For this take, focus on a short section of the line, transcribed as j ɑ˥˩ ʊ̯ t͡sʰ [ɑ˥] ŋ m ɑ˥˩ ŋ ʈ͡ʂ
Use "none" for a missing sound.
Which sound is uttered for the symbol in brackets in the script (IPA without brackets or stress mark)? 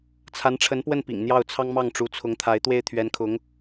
ɑ˥